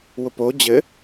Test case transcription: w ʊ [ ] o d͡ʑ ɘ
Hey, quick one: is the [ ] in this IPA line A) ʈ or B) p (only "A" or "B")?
B